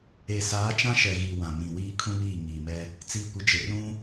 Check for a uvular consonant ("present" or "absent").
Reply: absent